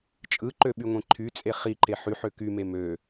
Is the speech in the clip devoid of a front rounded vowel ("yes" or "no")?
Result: no